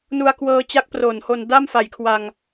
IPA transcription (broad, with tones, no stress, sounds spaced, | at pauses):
n u˧ a̯ k w ɤː˧ t͡ɕ a˦˥ k̚ p r o˨˩ n h o˧ n d a˥˩ m f a˨˩ j kʰ w a˧ ŋ